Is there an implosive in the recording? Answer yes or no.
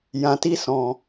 no